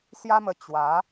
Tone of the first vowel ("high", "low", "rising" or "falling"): high